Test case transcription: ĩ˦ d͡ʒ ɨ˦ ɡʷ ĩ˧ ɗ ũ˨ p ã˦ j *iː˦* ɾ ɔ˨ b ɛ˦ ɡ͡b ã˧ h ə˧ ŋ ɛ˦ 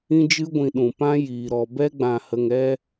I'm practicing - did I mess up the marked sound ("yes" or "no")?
yes